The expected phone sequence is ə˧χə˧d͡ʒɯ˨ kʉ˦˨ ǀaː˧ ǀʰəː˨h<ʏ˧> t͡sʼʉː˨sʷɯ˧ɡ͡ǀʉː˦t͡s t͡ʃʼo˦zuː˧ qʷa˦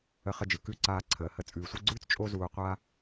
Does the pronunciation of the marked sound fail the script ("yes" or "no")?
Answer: yes